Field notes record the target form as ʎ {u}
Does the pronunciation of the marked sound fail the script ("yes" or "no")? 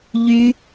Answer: yes